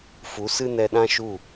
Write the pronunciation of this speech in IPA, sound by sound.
f u˨˦ s ɨ˦ n ɛ˧ ɗ ã˦ ʃ u˦˨

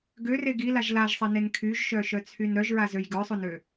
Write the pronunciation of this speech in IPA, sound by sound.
ɡ ø r e ɡ i l a ʒ l a ʒ sˤ e n e n kʰ y ʒ ʃ œ ʃ œ t͡sʰ y n ɾ œ ʒ ɹ a z ø j ɡ œ sˤ o n ø

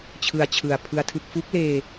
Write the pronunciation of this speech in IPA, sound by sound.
t͡ɕʰ ɯ˧ a̯ t͡ɕʰ ɯ˨˩ a̯ pʰ ɯ˦˥ a̯ tʰ ɯ˦˥ k̚ f u˦˥ k̚ l eː˧

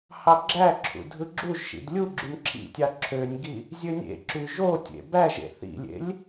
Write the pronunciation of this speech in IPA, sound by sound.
h ɑ ɡ͡ǁ æ ǁʰ ṵ dʱ ɯ ɡ͡ǁ u ʒ ʃ ḭ d lʲ u ɡ͡ǁ y m ǁʰ ḭ tʲ ɑ ǁʰ ø nʲ ɡ i | zʲ ø nʲ ḛ ǁ y ʒ o tʲ ḛ b æ ʒ ḛ θ ḭ lʲ ḛ lʲ

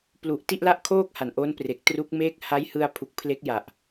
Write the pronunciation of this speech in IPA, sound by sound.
p l u˨˩ ʔ t i˥˩ ʔ l a˥˩ ʔ kʰ oː˥˩ k̚ h a˨˩ n ʔ o˦˥ n p r e˨˩ k̚ t r u˦˥ k̚ m eː˦˥ k̚ h a˦˥ j h ɯ˧ a̯ pʰ u˨˩ k̚ pʰ l e˦˥ k̚ j a˨˩ ʔ

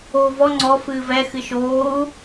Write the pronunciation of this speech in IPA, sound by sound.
oː v ɔ ŋ͡ǀ ɔ f ɨː v ɛ x ɨ ʃ oː u̯

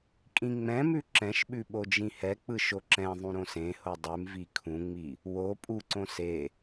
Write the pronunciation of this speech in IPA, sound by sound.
kʼ ĩ ŋ͡m ɛ̃ m ʉ ǁ ɛ̃ ʃ ɓ ʉ ɓ o d͡ʒ ĩ h ɛ k͡p ɯ ʃ o ǁ ɛ̃ ðˤ ũ ɾ õ s ẽ h o dˤ ʉ m v i kʰ ũ ŋ͡m i | w o pʼ u ǀ õ s e

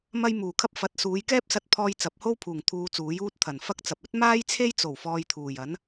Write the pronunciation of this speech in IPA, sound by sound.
m ɐ˧ j m uː˨˩ kʰ ɐ˥ p̚ f ɐ˨˥ t̚ s uː˨˧ j k ɛː˥ p̚ s ɐ˧ t̚ pʰ ɔː˧ j t͡s ɐ˨˥ p̚ h o˥ w pʰ uː˨˩ ŋ t̪ʰ uː˧ t͡s uː˨˥ j uː˥ t̚ t̪ʰ ɐ˨˩ n f ɐ˥ k̚ t͡s ɐ˨ p̚ ɵ˥ t̚ m aː˥ j t͡sʰ e˥ j t͡s o˨˩ w f ɔː˨ j t̪ʰ uː˨˩ j ɐ˨˥ n

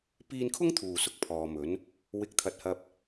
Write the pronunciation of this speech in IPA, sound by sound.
p iː˧ n kʰ ʊ˥ ŋ t̪ʰ uː˨˩ s ʊ˨ k̚ pʰ ɔː˨ m ɵ˨˥ n | w ɪ˧ k̚ t̪ʰ ɐ˨˥ t̚ h ɐ˧ p̚

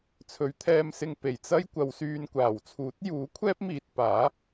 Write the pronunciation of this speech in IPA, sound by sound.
t͡sʰ ɵ˨˥ ɥ t̪ʰ ɛː˧ m s ɪ˧ ŋ p e˨˩ j t͡s ɐ˥ j kʷ ɐ˨˧ w s yː˧ n kʷ aː˨˩ w t͡sʰ uː˨˥ t̚ j uː˨˥ kʷʰ ɛː˥ p̚ m iː˧ t̚ p aː˨˥

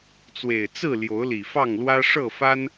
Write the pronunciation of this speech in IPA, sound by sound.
t͡s w e˨˩ ɪ̯ t͡s ɹ̩˥˨ l j o˨˦ ʊ̯ l i˨˩ f ɑ˥˨ ŋ l w ä˦ ʂ ɤ˥˨ f a˦ n

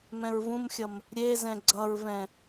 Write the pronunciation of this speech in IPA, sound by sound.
m ɛ̃ ɹ v ũ m xʲ ʌ m | ɾʲ e z ɛ̃ ɡ͡ǀ ʌ ɹ v ɛ̃

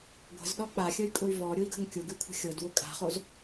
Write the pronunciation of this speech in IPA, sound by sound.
ɡʷ ə̤ z ɗ ɔ k͡p a xʲ ə y̯ kʼ ʊ y̯ v ɔ ɾʲ ʊ i̯ ɡ ə̤ ŋ kʲ ʊ ɡ ʉ kʷʰ ə̤ xʲ ɤ d w ʊ kʼ a̤ χ o z

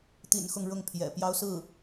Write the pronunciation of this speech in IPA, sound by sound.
t̪ ḭ˨˩ n x ʊ˥˧ ŋ ɻ ʊ˥˩ ŋ pʰ j ɛ̰˨˩ p j ɑ˥ ʊ̯ s ɹ̩˥˩

